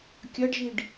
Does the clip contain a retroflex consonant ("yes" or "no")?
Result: yes